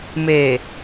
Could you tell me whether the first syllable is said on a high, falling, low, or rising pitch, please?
low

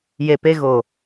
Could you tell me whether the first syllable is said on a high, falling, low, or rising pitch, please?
low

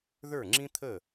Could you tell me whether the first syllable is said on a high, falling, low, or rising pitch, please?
falling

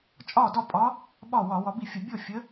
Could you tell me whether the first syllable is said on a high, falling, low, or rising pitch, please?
falling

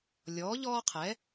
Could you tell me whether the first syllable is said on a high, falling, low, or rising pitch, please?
rising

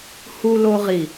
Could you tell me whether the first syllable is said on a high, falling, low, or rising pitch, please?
high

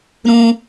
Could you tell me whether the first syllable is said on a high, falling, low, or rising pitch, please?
high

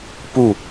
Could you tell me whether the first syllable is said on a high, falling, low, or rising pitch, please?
low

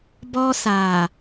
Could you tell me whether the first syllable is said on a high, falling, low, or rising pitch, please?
high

